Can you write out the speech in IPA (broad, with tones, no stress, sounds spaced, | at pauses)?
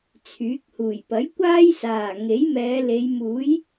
t͡sʰ yː˨˥ k̚ h uː˨˩ j p ɐ˨˥ j kʷ aː˥ j s aː˨˩ ŋ e˨˥ j m ɛː˨˧ l e˨˧ j m uː˨˥ j